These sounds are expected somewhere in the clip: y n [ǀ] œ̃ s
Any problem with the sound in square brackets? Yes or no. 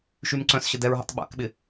no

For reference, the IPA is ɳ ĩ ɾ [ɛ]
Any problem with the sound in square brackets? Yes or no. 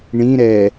no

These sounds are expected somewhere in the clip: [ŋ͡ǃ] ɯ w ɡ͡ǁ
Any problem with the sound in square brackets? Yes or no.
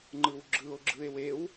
no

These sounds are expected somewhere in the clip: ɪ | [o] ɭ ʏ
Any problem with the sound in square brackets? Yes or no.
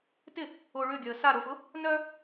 no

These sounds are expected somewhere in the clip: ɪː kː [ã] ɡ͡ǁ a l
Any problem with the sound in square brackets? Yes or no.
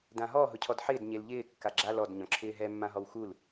yes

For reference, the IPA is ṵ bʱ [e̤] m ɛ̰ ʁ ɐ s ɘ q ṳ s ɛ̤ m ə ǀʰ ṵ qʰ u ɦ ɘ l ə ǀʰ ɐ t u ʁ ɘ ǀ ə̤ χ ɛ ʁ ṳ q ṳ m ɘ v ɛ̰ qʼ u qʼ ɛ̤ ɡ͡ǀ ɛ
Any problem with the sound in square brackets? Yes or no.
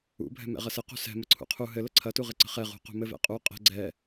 yes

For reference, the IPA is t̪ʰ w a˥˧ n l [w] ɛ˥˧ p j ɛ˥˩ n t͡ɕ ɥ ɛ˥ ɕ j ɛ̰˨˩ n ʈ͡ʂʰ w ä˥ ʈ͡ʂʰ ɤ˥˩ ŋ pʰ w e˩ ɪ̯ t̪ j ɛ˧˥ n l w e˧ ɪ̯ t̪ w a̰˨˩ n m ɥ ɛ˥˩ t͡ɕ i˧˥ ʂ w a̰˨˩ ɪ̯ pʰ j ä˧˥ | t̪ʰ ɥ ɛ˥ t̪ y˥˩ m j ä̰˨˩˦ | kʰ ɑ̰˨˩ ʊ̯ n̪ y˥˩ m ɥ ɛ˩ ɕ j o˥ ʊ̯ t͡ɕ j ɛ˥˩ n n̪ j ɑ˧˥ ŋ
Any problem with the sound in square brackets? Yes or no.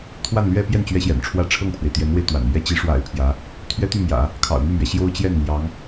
yes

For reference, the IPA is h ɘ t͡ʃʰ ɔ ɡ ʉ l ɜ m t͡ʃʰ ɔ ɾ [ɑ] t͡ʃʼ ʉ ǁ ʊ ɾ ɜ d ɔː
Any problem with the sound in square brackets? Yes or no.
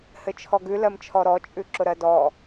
yes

